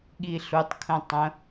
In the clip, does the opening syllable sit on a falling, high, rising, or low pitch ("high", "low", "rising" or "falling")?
low